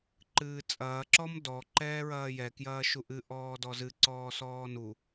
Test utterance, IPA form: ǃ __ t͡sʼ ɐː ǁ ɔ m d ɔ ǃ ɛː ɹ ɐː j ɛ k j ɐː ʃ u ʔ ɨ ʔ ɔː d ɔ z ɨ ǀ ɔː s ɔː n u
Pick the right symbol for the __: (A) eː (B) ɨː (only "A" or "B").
B